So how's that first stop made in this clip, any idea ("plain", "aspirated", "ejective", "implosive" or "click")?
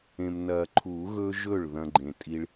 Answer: click